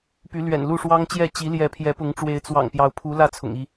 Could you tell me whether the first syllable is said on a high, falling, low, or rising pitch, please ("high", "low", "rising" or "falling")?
rising